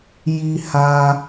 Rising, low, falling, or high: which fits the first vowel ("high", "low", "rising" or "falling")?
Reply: high